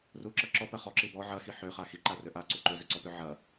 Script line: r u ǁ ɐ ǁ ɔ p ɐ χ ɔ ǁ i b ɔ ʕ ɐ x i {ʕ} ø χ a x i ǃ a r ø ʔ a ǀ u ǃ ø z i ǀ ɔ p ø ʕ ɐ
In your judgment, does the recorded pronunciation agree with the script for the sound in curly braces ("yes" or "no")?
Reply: no